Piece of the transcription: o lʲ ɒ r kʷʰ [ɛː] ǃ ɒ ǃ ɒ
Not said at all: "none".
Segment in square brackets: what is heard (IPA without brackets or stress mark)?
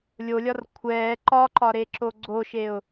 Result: ɛː